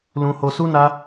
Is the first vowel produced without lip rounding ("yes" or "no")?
no